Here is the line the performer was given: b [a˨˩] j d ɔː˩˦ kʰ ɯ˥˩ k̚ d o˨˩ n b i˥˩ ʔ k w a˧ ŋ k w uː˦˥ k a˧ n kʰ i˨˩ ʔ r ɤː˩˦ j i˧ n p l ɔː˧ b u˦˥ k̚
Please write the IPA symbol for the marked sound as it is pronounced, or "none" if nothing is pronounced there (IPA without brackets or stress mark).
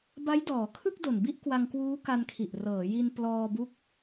a˦˥